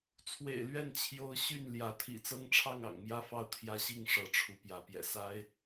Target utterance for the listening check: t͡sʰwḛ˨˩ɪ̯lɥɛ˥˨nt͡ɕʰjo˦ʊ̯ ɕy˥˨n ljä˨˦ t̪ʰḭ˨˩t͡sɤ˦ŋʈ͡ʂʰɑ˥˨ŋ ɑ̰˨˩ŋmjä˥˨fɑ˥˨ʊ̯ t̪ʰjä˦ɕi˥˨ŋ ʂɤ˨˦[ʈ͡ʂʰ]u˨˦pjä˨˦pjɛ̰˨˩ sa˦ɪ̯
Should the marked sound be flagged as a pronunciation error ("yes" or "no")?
no